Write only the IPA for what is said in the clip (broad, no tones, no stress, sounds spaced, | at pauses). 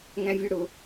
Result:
ŋ æ̃ vʲ œ ɽ ʊ